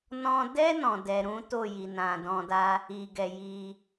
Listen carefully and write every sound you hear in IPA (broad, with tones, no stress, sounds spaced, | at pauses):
n ɔ̃˧ d ɛ˦ n ɔ̃˧ d ɛ˧ ɾ ũ˦ t o˦˨ j i˨ n ã˨ d ɔ̃˧ d a˦ | i˨ ɡ ɛ˨ j i˧